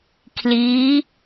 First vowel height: high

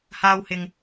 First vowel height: low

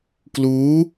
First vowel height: high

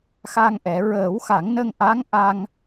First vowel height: low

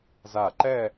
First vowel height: low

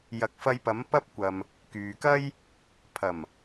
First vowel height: low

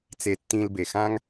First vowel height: mid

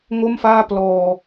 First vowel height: mid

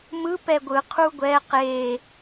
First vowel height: high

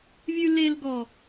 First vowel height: high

